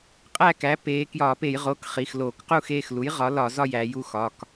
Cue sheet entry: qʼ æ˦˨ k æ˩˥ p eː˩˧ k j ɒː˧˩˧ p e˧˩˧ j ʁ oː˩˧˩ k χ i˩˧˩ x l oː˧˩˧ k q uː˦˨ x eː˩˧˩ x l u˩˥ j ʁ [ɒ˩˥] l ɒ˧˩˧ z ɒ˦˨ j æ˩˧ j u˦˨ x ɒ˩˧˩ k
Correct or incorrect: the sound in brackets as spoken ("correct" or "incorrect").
correct